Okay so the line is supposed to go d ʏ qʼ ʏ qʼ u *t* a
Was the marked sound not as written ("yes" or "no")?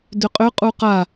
yes